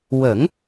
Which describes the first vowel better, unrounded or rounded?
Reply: unrounded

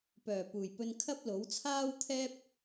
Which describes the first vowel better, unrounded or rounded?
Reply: rounded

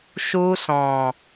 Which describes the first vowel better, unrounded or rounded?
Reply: rounded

